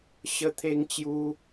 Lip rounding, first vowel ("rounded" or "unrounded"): unrounded